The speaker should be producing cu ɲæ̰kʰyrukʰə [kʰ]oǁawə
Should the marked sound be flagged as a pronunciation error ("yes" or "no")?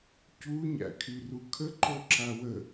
yes